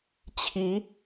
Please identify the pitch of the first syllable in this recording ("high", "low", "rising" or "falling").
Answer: rising